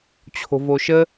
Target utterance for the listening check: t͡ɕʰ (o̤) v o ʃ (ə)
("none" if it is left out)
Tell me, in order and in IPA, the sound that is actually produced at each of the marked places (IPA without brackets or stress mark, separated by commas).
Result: o̤, ə